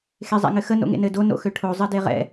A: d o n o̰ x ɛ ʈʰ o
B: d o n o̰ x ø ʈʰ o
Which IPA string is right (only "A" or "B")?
B